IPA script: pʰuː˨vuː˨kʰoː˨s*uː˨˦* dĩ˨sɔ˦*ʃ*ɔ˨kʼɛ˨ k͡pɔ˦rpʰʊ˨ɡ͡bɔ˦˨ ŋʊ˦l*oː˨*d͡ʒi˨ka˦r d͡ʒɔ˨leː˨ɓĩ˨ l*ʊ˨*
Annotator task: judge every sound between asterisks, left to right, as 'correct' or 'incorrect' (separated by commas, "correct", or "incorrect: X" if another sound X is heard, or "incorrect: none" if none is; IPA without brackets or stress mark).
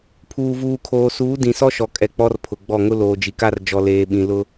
correct, correct, correct, incorrect: ʊ˦